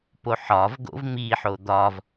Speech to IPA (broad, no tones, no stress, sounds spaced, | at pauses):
p o ħ ɒ v ɡ o̰ v m i ħ o d̪ ɒ v